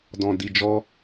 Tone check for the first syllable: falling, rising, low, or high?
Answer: low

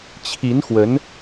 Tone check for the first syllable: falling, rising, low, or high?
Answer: rising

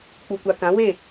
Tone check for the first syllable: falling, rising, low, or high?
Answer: low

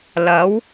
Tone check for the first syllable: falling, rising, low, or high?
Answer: rising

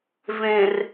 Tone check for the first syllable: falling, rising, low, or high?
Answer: low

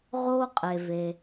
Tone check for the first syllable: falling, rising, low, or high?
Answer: high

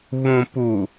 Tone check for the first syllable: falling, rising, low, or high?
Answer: low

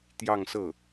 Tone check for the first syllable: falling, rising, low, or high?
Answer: falling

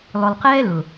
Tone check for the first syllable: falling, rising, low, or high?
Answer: low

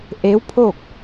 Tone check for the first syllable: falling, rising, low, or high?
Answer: rising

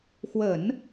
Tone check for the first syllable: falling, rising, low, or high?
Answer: low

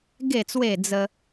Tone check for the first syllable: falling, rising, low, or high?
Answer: low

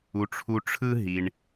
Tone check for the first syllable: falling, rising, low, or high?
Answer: low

